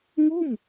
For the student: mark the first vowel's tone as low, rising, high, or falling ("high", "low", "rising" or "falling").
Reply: falling